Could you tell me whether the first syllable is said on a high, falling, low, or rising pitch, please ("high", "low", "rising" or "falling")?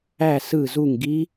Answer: falling